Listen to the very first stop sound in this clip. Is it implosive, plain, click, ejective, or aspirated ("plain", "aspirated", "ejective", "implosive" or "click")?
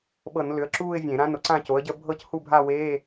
implosive